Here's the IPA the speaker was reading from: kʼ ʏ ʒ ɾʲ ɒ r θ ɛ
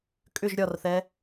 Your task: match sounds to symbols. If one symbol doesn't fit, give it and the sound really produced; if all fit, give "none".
none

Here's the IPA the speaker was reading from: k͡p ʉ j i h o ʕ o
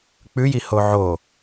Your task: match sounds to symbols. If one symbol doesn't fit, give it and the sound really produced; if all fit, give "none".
none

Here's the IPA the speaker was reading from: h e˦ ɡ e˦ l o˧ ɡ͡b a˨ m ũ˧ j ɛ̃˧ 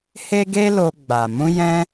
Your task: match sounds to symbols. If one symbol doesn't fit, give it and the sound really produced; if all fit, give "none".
none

